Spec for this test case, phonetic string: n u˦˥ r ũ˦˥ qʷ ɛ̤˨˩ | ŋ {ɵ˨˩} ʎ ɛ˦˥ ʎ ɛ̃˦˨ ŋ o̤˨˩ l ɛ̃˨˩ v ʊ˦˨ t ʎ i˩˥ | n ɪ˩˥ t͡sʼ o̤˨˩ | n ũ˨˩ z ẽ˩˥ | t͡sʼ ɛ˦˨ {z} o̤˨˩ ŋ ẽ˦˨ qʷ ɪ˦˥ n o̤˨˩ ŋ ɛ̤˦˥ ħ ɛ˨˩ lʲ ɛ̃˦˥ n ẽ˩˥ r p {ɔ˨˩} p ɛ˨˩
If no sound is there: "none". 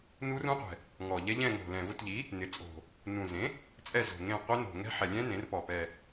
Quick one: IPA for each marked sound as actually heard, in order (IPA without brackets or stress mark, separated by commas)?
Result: ɔ˨˩, z, ɔ˨˩